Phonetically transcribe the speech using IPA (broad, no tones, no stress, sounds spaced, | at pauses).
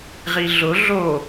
ʁ i ɮ ʊ ɮ o